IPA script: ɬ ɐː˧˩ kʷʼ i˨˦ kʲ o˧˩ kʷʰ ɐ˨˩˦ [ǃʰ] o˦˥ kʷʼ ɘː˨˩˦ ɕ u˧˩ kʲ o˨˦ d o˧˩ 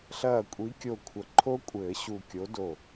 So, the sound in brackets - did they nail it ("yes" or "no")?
yes